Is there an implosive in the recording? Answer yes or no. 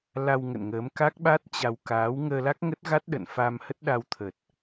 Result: yes